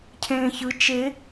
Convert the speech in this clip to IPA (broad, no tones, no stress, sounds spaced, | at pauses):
cʰ ẽː ç ɯ t͡ʃ e